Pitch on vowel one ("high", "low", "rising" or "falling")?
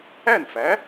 falling